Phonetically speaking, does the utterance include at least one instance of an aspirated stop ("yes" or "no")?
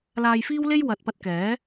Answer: no